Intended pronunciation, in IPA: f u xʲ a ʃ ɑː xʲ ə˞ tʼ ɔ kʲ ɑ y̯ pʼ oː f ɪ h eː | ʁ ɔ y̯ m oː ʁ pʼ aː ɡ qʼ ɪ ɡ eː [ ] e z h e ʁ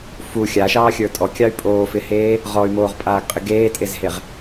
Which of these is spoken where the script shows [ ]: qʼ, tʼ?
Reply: tʼ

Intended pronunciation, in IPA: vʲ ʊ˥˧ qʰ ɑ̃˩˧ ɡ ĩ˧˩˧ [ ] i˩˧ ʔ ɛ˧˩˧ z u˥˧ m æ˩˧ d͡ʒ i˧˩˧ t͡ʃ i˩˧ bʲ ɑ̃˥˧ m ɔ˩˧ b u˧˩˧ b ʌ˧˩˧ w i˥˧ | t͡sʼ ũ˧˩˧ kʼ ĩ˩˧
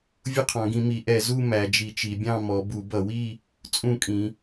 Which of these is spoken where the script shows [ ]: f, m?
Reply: m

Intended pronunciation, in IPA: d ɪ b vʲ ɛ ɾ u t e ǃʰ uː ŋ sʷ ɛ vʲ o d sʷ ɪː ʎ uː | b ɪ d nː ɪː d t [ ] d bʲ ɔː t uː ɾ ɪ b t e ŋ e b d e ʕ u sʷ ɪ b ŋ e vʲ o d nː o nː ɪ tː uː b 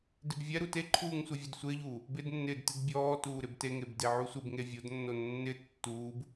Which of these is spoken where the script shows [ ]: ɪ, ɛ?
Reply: ɪ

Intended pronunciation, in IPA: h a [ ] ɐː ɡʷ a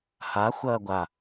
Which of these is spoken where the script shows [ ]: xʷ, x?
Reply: xʷ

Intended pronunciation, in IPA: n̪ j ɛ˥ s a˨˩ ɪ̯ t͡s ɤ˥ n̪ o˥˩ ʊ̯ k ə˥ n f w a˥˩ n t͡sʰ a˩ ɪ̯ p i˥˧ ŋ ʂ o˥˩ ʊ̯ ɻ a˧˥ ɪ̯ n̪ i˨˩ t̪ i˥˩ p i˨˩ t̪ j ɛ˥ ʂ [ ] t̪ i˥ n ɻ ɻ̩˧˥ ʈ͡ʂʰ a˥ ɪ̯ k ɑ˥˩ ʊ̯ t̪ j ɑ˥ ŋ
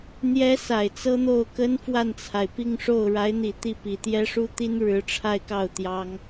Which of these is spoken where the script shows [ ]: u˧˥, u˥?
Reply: u˥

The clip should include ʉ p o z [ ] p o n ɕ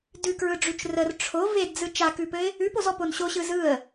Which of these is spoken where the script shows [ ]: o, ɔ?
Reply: ɔ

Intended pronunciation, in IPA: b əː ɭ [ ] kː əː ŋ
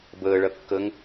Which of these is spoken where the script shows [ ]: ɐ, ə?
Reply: ɐ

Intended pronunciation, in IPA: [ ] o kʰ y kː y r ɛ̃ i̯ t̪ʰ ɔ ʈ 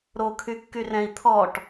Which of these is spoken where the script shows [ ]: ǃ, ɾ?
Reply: ɾ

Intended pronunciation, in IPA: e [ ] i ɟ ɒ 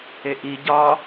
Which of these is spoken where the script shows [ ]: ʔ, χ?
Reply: ʔ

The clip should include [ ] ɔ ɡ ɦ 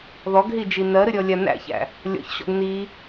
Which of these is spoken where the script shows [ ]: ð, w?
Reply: ð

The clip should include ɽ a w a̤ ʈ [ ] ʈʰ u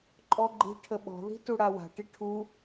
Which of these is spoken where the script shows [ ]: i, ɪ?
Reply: i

